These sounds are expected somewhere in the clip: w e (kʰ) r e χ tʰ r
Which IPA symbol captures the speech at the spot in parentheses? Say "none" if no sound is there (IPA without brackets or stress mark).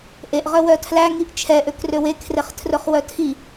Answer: kʰ